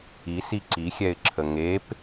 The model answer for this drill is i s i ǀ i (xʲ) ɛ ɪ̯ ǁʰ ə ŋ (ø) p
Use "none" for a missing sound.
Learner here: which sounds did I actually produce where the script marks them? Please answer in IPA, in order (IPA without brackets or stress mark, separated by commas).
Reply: xʲ, e